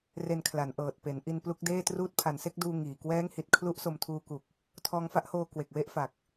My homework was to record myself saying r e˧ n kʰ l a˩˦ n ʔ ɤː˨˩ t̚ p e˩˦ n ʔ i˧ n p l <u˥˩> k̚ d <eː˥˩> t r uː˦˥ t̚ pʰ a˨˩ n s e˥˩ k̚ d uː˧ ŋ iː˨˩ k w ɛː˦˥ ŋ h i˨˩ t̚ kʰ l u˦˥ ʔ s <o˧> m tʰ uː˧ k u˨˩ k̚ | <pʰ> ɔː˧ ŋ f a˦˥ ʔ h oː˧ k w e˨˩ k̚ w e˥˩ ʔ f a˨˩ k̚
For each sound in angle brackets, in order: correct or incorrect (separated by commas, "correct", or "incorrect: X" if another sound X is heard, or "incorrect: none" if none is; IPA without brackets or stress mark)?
incorrect: u˦˥, correct, correct, incorrect: tʰ